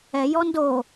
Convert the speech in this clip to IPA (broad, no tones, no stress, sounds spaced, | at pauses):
ɛ j ɔ n d o